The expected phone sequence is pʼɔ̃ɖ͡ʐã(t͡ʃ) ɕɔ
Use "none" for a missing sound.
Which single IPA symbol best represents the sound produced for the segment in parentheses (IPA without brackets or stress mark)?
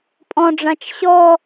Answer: t͡ʃ